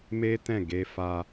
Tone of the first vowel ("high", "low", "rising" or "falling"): high